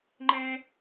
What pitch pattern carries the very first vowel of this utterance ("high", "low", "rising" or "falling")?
high